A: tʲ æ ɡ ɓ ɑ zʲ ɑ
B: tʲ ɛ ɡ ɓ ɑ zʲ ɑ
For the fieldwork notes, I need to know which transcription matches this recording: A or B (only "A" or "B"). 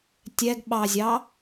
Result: B